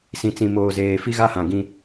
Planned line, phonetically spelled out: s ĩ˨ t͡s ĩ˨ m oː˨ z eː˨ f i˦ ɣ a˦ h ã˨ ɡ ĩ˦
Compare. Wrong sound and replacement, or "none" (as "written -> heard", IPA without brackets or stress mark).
none